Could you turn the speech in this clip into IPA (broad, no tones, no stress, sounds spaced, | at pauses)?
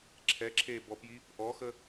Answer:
ǁʰ ɛ ǁʰ eː b ɔ p j i | ʔ ɔ x ə